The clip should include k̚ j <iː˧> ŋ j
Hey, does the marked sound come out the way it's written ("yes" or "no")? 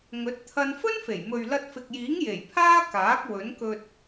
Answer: no